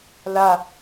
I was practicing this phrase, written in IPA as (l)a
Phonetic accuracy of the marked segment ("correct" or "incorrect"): correct